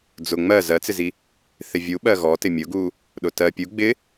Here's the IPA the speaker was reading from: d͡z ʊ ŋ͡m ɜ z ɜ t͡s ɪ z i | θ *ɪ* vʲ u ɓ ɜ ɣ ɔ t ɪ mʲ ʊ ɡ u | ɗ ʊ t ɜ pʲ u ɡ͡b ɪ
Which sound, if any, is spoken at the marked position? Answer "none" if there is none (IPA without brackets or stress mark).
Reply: ɪ